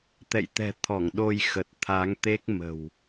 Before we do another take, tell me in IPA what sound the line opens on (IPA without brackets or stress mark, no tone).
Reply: t̪